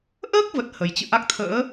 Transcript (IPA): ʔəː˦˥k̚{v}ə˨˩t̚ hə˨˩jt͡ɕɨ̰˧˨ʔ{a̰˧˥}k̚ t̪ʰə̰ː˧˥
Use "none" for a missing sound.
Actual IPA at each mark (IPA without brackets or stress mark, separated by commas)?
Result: v, a˦˥